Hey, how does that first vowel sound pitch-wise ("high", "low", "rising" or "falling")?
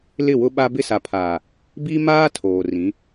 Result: falling